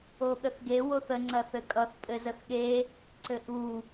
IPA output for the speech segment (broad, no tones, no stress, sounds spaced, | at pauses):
o ɠ ə θ ɡ e w o θ ə ŋ͡ǀ ɐ θ ɘ kʼ ʌ θ pʼ ɘ z ə θ ɠ e | ǀ ɘ ʔ u